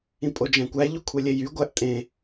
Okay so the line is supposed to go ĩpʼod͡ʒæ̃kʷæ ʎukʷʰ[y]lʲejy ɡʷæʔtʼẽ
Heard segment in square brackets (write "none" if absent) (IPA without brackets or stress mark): e